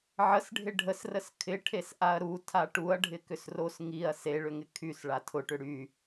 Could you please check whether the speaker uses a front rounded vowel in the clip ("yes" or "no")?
yes